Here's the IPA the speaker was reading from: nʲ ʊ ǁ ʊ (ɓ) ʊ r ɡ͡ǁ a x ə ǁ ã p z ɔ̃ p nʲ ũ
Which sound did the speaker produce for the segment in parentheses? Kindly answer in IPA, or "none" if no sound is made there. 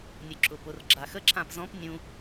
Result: p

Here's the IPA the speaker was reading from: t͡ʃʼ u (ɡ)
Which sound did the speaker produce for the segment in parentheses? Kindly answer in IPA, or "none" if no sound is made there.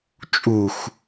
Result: x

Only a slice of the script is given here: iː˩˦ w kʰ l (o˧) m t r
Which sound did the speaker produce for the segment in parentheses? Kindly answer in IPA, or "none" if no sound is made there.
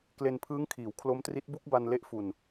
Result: o˦˥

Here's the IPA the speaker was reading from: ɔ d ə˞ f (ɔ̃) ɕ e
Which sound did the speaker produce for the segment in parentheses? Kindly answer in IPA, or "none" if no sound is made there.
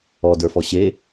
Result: ɔ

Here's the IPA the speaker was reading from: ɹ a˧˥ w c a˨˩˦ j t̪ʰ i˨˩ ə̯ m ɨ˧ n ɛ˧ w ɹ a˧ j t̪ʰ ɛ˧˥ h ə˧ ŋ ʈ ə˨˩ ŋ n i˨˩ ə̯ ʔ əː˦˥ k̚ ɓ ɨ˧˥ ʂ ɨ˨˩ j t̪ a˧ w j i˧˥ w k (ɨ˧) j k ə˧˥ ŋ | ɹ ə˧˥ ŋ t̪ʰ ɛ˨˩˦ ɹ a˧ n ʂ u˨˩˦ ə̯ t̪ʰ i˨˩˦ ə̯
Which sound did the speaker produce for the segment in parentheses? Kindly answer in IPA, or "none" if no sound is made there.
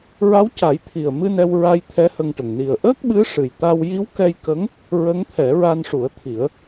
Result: ɛ˧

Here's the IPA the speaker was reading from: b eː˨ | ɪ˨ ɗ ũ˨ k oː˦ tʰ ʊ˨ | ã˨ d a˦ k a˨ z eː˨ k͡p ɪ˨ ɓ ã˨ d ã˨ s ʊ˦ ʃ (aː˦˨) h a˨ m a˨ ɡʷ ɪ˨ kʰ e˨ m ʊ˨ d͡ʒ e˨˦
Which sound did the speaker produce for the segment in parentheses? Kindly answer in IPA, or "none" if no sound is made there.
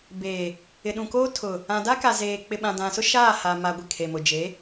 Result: aː˦˨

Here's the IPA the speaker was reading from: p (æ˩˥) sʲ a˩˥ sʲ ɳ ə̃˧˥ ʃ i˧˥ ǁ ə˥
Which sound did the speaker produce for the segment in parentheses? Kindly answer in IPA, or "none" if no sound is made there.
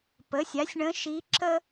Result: ə˩˥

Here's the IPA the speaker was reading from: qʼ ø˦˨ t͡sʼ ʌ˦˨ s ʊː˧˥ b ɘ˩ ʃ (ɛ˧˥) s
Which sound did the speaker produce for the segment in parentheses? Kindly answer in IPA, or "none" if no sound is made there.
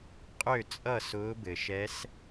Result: ɛ˧˥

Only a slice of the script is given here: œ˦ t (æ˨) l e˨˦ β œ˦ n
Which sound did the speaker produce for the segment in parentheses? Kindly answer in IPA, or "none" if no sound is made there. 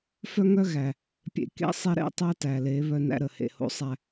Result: æ˨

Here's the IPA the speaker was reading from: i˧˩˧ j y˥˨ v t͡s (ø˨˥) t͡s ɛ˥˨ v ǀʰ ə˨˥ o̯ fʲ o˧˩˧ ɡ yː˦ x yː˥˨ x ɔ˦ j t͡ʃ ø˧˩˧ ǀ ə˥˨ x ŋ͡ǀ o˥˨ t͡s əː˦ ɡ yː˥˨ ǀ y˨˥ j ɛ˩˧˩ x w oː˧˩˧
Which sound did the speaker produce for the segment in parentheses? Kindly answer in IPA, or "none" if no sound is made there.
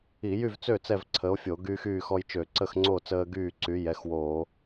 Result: ø˥˨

